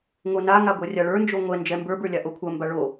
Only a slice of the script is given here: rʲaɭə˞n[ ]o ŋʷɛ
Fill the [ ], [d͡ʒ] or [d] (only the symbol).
d͡ʒ